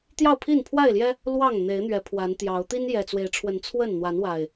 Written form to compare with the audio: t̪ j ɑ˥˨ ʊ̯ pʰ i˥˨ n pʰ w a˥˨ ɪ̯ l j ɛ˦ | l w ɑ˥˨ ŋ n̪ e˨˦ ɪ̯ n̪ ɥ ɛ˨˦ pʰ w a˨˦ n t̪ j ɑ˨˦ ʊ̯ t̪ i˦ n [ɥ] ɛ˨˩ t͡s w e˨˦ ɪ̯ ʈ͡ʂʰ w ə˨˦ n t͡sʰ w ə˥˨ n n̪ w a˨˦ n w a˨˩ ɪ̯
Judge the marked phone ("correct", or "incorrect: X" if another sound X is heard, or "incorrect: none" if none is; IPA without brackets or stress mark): incorrect: j